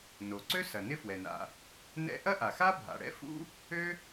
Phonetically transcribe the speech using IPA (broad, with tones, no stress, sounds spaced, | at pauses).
n o˩ ǀ ø˥ s ɐ˩ n ɪ˥ f w ɛ˩ n a̰˩ | n ɛ̰˥ ʔ ɐ˥ ʔ a˩ x a˥ bʱ a̰˩ ɽ ɛ̰˥ f ṵ˥ | ø˥